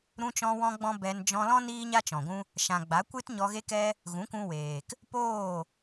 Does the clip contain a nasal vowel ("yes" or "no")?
yes